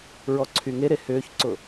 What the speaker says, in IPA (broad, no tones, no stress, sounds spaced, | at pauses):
ɹ ɔ ǀʰ y ŋ e ɾ e h ʏː ç ǀ ʊ